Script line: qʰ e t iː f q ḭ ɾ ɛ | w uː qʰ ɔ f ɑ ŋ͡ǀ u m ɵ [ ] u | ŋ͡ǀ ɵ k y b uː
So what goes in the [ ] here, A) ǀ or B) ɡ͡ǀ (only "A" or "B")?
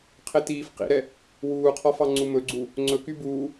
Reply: B